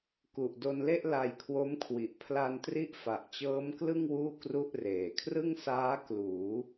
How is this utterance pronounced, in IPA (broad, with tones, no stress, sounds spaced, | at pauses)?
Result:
k u˨˩ ʔ d o˧ n l e˥˩ ʔ l a˧ j kʰ w o˦˥ m kʰ w i˨˩ ʔ pʰ l a˧ n t r i˦˥ ʔ f a˨˩ ʔ t͡ɕ ɤː˦˥ m k l ɯ˥˩ ŋ w uː˥˩ k r u˥˩ ʔ r eː˨˩ kʰ r ɯ˥˩ ŋ s aː˦˥ k l uː˩˦